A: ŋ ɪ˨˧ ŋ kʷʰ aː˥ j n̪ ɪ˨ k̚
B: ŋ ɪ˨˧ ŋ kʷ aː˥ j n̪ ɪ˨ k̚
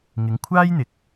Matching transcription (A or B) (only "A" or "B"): A